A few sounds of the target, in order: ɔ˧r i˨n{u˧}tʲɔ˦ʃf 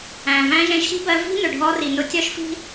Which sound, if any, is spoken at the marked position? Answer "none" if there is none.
ʊ˧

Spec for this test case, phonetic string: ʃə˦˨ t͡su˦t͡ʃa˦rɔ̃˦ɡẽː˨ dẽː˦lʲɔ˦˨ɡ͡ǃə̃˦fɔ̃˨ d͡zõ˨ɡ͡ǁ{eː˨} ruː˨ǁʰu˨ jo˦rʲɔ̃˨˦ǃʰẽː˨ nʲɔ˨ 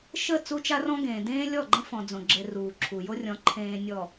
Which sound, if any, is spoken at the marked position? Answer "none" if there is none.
e˨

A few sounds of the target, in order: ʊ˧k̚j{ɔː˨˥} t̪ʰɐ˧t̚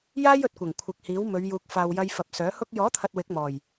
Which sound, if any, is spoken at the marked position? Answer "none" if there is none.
ɔː˨˥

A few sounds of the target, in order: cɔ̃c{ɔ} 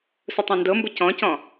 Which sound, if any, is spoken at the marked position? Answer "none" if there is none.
ɔ̃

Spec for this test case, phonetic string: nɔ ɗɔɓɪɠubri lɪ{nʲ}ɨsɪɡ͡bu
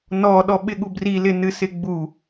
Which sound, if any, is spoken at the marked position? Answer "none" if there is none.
n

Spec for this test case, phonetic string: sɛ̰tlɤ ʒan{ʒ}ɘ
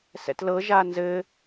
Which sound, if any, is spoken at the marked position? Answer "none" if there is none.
z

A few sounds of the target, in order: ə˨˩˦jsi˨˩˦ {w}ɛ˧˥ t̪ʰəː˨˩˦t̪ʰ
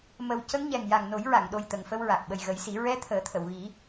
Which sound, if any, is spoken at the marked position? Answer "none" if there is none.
ɹ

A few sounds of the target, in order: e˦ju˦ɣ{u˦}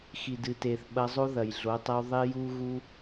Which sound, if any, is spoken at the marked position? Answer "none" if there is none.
u˦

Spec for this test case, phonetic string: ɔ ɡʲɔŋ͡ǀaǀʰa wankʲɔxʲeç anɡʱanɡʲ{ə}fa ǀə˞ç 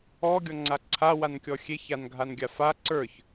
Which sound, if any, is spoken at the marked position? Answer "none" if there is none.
a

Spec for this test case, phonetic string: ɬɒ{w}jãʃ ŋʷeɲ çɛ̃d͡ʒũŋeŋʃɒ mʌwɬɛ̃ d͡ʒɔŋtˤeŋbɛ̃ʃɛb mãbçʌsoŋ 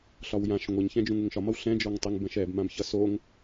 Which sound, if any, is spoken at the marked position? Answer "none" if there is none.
w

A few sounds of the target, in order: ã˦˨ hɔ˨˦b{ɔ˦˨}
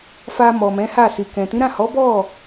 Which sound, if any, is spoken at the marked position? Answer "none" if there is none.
ɔ˦˨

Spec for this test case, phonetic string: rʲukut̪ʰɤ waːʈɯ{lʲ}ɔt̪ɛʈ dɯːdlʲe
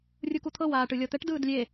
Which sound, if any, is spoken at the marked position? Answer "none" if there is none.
lʲ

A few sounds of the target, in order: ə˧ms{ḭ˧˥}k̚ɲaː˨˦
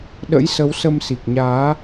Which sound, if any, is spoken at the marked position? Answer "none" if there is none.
i˨˩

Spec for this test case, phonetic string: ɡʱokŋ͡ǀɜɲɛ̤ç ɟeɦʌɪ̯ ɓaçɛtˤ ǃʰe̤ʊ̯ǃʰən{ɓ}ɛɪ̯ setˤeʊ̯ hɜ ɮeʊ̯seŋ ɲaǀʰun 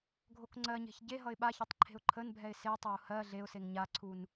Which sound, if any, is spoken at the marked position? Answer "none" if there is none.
bʱ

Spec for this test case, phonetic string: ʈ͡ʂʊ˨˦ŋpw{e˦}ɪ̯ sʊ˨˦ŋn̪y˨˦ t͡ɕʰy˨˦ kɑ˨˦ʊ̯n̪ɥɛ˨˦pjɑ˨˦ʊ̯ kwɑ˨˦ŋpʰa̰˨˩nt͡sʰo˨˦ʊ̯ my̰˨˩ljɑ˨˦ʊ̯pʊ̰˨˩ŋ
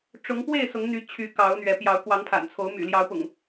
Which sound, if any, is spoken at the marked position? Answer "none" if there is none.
e˥˨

